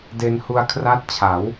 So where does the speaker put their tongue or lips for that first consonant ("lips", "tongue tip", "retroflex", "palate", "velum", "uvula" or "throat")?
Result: tongue tip